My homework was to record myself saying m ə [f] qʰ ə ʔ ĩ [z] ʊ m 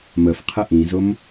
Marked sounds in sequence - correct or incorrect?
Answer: correct, correct

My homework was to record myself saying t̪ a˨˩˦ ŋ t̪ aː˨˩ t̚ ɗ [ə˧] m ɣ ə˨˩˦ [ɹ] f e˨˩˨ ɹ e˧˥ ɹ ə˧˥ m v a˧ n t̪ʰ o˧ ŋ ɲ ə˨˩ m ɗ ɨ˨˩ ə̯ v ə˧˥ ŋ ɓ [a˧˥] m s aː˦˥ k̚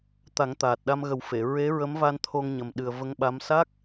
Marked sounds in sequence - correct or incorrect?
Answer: incorrect, incorrect, correct

